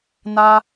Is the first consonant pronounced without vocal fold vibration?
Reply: no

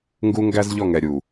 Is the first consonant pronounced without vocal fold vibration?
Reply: no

